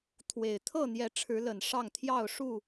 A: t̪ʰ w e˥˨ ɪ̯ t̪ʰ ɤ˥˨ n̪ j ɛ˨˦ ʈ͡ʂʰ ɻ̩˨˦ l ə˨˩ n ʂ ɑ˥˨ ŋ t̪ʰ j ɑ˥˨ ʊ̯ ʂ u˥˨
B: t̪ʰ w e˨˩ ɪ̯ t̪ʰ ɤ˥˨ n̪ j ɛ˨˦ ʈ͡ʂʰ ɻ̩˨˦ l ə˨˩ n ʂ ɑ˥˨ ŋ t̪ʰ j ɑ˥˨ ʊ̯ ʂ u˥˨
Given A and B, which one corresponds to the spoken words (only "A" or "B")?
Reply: B